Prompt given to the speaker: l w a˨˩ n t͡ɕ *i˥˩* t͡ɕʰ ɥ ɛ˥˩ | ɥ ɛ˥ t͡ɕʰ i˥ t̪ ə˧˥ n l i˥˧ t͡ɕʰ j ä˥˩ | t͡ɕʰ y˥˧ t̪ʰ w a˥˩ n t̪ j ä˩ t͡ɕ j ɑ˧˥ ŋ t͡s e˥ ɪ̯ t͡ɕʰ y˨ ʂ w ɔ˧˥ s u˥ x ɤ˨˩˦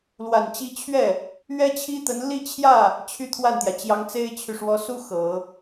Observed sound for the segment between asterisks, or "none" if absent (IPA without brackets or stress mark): i˧˥